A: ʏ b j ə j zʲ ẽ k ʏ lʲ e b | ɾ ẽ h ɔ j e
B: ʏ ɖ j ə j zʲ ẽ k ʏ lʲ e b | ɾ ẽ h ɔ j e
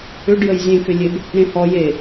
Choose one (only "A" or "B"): B